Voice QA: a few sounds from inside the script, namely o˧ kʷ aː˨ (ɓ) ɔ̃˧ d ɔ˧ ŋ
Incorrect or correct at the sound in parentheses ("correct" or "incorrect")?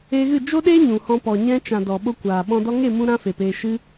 correct